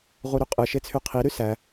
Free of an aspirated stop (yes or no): no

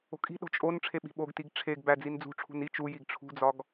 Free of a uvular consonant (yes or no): yes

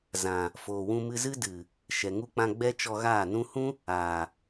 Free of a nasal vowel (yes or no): no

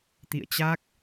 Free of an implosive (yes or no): yes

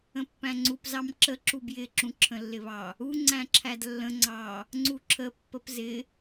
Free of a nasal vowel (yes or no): no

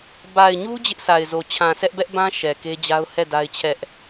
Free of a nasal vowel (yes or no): no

